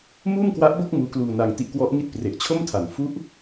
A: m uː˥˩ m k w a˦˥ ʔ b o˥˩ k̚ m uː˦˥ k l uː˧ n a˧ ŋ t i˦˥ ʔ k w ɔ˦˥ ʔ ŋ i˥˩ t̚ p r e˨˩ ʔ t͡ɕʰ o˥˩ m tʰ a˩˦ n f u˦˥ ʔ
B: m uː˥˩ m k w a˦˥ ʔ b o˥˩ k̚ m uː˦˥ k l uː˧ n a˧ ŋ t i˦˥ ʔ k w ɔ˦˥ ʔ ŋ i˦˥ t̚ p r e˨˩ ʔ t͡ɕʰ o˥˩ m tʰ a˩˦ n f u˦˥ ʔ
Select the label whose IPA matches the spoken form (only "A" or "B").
A